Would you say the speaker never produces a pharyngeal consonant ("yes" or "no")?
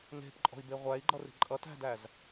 yes